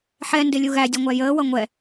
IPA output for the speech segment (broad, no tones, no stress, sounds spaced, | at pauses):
ħ ɛ n d ɪ lʲ u ɣ æ dʲ ʌ ŋʷ æ j əː w ʌ ŋʷ ɛ